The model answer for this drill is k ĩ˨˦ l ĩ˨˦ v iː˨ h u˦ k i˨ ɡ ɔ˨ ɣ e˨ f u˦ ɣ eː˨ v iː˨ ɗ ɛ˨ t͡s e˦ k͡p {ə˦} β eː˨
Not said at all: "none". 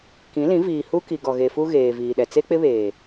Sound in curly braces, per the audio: ɪ˦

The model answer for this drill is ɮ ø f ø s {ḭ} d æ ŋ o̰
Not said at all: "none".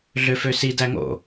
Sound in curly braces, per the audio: i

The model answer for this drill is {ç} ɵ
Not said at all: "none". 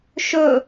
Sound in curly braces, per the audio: ʃ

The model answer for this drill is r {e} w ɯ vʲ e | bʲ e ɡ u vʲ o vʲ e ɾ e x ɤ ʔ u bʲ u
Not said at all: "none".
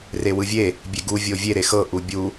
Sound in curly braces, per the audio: e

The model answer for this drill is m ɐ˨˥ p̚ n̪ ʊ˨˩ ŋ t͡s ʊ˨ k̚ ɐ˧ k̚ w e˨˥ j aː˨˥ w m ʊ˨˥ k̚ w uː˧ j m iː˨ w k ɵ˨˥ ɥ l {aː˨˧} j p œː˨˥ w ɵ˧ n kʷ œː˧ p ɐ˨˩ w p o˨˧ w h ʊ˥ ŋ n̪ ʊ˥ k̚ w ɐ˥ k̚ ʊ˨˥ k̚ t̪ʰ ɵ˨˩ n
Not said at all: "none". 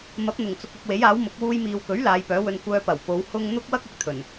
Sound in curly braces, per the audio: aː˨˧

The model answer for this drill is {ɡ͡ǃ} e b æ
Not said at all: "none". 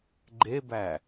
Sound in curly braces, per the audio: ɡ͡ǃ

